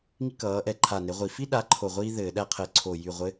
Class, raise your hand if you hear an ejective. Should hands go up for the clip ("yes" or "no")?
no